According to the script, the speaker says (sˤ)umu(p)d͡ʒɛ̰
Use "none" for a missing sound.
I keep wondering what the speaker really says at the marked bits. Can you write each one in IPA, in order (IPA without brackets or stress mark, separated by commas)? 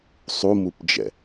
sˤ, p